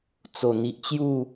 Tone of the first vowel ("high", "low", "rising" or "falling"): low